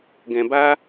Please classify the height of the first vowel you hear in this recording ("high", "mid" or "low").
mid